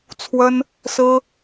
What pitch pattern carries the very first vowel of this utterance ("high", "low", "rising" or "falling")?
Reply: high